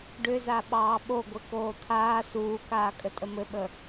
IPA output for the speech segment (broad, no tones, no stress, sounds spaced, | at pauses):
ɖ ʏ z a ɓ ɑː ɓ o ɡʷ ɘ k oː t̪ʰ aː s uː k aː kʼ ə tʼ ə m ɘ ɓ ə